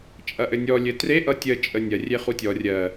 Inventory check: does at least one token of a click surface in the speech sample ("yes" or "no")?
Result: no